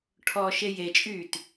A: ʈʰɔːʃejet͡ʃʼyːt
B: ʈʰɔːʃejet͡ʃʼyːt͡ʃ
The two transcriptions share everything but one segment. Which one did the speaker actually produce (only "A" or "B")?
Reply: A